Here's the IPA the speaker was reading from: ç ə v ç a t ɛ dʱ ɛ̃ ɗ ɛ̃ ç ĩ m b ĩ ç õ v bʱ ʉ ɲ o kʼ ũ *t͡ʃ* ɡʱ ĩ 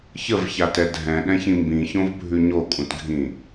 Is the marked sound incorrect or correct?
incorrect: t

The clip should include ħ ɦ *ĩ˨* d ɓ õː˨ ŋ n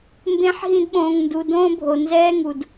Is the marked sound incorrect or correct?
incorrect: ĩ˧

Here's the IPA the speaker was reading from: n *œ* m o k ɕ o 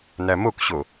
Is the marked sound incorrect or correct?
incorrect: æ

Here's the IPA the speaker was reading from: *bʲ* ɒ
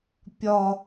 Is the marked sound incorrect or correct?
incorrect: pʲ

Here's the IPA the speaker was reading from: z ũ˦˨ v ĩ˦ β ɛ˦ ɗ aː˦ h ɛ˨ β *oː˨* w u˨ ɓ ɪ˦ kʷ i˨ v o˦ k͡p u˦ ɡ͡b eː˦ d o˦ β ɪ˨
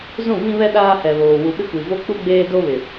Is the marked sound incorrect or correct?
correct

